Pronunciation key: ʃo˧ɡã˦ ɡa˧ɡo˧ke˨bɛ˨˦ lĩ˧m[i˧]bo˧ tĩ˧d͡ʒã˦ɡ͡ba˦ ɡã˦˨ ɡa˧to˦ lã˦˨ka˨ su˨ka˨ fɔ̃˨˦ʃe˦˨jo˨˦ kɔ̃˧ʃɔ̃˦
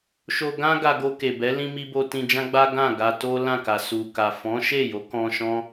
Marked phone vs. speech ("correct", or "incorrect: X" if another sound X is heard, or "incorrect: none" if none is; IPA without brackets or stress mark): correct